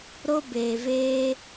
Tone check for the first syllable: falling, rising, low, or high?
high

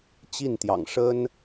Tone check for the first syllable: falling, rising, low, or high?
falling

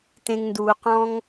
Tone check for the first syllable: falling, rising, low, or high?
low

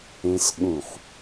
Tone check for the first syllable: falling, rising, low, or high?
high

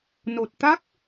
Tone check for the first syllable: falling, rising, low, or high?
low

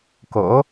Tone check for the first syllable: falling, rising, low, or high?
rising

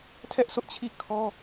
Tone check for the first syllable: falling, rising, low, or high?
high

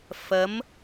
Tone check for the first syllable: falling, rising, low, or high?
rising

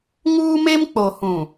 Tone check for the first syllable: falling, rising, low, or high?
high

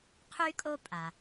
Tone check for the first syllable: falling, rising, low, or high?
high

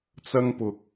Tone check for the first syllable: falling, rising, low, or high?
high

